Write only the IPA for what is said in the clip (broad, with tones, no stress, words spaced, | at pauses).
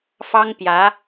fɑ˥ŋpjä˧˥